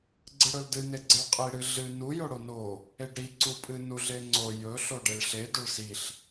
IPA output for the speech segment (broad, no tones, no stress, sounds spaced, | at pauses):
ɡ͡ǀ ɨ ɽ ɵ l d ɨ n e ɡ͡ǀ e ɭ qʼ i ɽ ɨ ɮ ɨ n u j o ɽ o n o | e ɖ ɾ i ǀ u pʼ ɨ n u ɮ e ŋ͡ǀ o j ɵ ɬ o ɖ e ɭ ɬ e d ɵ ɭ s i ɬ